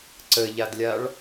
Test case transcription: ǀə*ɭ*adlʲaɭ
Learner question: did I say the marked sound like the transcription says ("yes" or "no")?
no